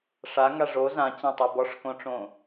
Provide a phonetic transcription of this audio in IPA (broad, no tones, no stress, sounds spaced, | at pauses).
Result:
ʂ a ŋ a ʐ o z ã t͡ɕ ã tˤ u b ɔ ʂ k õ ʈ͡ʂ õ